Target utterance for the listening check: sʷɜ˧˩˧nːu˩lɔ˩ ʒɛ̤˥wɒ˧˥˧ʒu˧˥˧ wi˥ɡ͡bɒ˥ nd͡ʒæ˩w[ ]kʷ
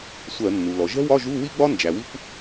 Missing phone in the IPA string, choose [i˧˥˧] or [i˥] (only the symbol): i˥